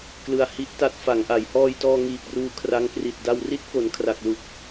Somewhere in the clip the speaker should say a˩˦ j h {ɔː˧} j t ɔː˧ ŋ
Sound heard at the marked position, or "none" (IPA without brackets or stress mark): ɔː˧